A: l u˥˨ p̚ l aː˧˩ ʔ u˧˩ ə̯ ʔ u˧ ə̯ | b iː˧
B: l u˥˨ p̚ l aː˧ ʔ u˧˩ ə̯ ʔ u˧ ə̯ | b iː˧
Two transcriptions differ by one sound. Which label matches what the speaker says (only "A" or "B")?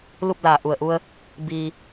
A